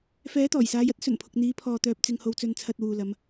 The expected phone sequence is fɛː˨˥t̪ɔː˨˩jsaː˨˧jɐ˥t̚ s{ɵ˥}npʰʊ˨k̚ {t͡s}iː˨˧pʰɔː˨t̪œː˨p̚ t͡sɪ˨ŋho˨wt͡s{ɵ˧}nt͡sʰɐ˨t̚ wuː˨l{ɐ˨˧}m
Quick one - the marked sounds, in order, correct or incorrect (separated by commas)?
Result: incorrect, incorrect, incorrect, correct